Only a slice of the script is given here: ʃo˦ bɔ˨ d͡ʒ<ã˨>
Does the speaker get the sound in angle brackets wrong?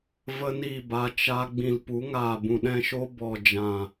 no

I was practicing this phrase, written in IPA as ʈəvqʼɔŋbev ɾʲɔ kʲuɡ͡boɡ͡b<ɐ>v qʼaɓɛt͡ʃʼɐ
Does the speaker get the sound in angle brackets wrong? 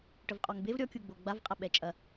yes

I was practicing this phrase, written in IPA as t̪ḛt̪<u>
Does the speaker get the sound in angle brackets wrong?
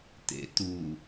no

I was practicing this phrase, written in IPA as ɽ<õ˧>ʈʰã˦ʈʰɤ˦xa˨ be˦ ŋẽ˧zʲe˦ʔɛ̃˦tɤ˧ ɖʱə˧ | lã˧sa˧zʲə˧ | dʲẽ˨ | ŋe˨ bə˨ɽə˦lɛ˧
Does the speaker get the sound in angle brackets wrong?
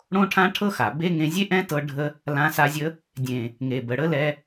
yes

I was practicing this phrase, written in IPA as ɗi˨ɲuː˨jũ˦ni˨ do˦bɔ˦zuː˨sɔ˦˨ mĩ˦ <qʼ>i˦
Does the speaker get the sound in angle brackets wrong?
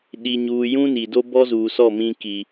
yes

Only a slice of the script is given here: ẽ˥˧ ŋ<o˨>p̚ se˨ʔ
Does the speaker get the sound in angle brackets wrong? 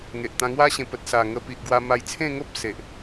yes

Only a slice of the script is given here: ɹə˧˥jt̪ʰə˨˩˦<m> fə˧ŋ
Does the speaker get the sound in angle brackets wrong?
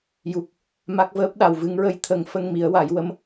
yes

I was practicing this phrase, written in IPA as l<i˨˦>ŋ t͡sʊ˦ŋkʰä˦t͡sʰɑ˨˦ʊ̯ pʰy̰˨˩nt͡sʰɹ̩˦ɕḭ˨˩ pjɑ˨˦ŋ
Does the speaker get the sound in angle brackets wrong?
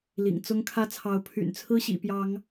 yes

